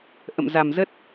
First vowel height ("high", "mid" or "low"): mid